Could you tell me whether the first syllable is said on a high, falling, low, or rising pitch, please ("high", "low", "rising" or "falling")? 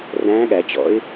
rising